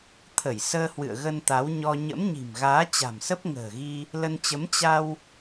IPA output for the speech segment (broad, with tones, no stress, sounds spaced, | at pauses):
t̪ʰ ə˧˩ j s əː˧ h w ɨ̰˧˨ ə̯ ɣ ə˧ n t̪ a˨˦ w ɲ ɔ˧ ɲ ə̰˧˥ m ɲ i̤˨˩ m ɣ aː˨˦ t͡ɕ a̤˨˩ m s ə˦˥ p̚ ŋ ə̤ː˨˩ ɣ i˧ | l ə˧ n t͡ɕ ə˨˦ m t͡ɕ a˧ w